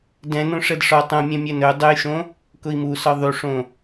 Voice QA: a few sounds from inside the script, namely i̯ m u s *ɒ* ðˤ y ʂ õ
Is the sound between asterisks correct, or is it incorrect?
correct